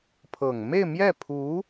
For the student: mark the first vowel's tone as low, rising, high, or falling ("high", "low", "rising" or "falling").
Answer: low